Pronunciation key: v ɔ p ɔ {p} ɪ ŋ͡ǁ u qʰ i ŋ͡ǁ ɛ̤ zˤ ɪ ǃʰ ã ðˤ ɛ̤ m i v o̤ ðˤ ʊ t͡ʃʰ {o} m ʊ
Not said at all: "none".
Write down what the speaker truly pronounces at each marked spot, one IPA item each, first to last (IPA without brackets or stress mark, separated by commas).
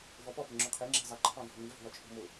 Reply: p, o̤